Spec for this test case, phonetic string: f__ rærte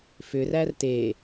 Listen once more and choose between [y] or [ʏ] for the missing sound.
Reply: ʏ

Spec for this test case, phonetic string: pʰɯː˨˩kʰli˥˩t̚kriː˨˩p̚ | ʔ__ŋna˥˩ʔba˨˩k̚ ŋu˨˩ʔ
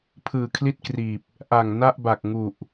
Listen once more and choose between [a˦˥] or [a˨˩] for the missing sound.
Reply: a˨˩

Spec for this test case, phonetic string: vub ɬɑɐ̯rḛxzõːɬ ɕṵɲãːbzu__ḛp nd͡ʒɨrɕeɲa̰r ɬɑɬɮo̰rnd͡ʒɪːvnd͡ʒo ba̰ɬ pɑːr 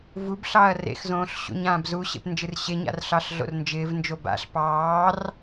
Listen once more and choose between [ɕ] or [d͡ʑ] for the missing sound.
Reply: ɕ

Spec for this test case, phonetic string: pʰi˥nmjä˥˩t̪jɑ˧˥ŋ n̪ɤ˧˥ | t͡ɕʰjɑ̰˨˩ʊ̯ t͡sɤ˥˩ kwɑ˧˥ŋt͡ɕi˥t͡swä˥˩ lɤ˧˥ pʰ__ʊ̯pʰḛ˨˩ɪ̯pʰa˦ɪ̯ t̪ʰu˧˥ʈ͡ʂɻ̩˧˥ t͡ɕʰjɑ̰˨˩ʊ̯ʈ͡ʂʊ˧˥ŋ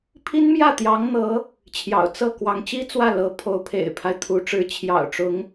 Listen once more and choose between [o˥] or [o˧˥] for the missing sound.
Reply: o˧˥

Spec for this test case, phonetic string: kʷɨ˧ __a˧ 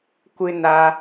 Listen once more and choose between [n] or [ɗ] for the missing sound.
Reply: n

